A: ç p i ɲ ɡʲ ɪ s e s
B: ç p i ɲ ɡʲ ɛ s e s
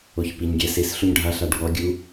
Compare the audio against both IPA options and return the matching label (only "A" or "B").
B